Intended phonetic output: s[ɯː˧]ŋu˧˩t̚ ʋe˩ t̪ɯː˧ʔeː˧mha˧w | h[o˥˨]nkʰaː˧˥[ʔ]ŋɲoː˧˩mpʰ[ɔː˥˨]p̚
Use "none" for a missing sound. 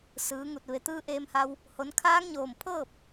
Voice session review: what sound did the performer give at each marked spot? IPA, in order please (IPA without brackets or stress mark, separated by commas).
ɯː˩˧, o˩˧, none, ɤː˥˨